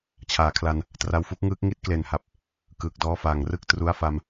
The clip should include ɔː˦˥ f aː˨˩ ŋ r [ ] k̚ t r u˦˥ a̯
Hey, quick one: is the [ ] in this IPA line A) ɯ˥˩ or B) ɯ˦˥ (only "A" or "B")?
A